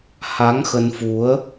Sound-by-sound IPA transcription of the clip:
h a˨˦ ŋ x ə˧ n f u˨˦ ə̯

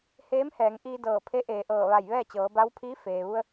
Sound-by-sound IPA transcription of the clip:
h eː˧˥ m h ɛː˩˧ ŋ ʔ iː˧ d ɤː˧˩ pʰ e˧˥ ʔ eː˩˧ ʔ ɤː˧˩ ʋ a˧˩ j ʋ ɛː˥˨ t͡ɕ ɤː˩˧ b a˧˥ w pʰ iː˧˥ f eː˩ ʋ u˧ ə̯

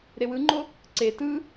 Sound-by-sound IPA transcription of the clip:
ɾ e w ɯ ŋ͡ǃ o | ǀ e t ɯ

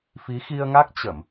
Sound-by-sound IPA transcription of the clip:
f i˨˦ x i˧ ə̯ ŋ a˦˥ k̚ t͡ɕ ə˧˩˨ m

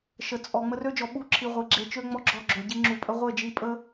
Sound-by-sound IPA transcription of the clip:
ʃ ə˨ t͡sʼ ɔ˨ ŋ͡m ə˧ r ø˦ d͡ʒ ɔ˨ ɓ u˦˨ ǁʰ i˨ ʁʷ e˨ ɡ͡ǁ e˧ t͡ʃ ø˦ ŋ͡m ɔ˦ ɡ͡ǁ ɔ˦˨ ɡ͡ǁ ø˨ ɟ i˧ ŋ͡ǁ u˨ pʼ ə˧ ʁʷ e˦˨ d͡ʒ i˧ pʼ ə˦

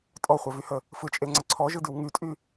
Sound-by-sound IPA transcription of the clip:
tʼ ɔ χʷ ɛ v y h ə | f ɯ t͡ʃʼ e ŋ͡ǀ ə ǀʰ ɔ ʒ ɯ d y w ŋ y tʼ y

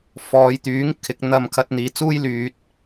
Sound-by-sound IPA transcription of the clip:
f ɔː˨˧ j t̪ yː˨˥ ŋ kʰ ɪ˨˥ k̚ n̪ ɐ˧ m kʰ ɐ˧ t̚ n̪ iː˨ t͡s uː˥ j l yː˨ t̚

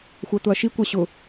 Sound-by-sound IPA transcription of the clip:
xʷ æ t̪ ʊ ɐ̯ ʃ i kʷ a ɕ ʊ

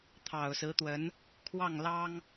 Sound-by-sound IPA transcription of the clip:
t̪ʰ ɑ˨˩ ʊ̯ s ɹ̩˧˥ t̪ w ə˧˥ n | kʰ w ɑ˥˩ ŋ l ɑ˥ ŋ

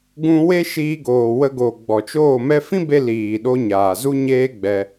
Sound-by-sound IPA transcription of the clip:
ɡ ũ˧ w e˦ ʃ iː˧ ɡ oː˨ w ə˧ ɡ o˨ ɡ͡b ɔ˨ t͡ʃ oː˦˨ m ɛ˦ f ĩ˦ b e˧ l iː˨ ɗ o˧ ɲ aː˨ z u˦ ɲ eː˦ ɡ͡b ɛ˧

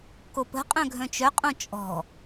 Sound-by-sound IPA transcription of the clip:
k o p ə̤ qʼ œ̃ ɡʱ œ̃ t͡ʃ œ qʼ õ t͡ʃʼ ɔ̤

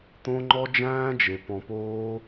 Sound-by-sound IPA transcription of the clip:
t̪ õ˦ ŋ͡ǃ ɔ˦ d͡ʒ æ̃ː˦ d͡ʒ e˨ p ɔ̃˧ p oː˦

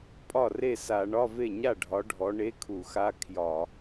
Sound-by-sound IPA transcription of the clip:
pʼ ɒ˥˩ r e˥˩ s a˧˩˧ ɳ ɒ˧˥˧ v e˥˩ ɲ a˥˩ ɖʱ ɒ˨˦ ɖʱ ɔ˨˦ ɳ e˧˥˧ kʰ u˧˩˧ x a˧˥˧ kʰ j ɒ˧˩˧

